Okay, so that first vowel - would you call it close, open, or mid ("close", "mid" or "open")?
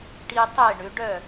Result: close